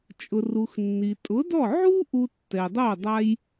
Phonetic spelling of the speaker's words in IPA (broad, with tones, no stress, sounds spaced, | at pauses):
t͡ʃʼ ʊ˩ r u˩ x nː i˩ tʼ ʊ˩˥ d ɔ˥˩ ʕ u˥ ʔ u˧ tː ɛ˩ dˤ o˥˩ dˤ a˧ j